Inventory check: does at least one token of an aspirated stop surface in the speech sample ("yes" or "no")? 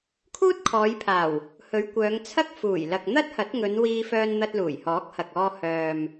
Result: yes